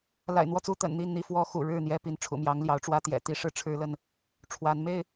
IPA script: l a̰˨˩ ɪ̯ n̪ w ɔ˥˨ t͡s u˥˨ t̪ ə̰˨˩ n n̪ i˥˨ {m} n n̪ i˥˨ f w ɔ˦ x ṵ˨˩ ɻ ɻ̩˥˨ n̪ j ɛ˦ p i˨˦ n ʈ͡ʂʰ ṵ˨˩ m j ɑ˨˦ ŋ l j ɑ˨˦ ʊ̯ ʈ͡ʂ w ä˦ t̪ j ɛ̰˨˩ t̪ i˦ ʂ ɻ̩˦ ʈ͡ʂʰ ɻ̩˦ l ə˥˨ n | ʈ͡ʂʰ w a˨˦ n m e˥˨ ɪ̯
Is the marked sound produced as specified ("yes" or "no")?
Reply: no